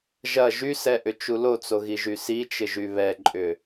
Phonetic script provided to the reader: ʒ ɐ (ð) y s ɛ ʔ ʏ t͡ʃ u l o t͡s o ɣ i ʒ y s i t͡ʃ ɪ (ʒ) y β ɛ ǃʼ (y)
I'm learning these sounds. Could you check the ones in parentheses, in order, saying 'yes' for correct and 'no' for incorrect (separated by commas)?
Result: no, yes, no